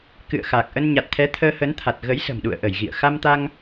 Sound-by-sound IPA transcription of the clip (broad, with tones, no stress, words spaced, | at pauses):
kɨ̰˧˨ə̯ xaː˨˩k̚ʔə˧n ɲa˨˩t̚t̪ʰɛ˨˦ t̪ʰəː˧hə˨˦nt̪ʰa˨˩t̚ ɣə˨˦jsə̤˨˩mɗṵ˧˨ə̯ʔə˧˩j ɣḭ˧˨ə̯ xa˧mt̪a˧ŋ